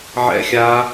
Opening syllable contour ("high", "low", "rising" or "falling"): high